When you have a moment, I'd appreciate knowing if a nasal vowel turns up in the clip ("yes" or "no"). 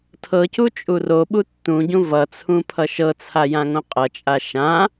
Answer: yes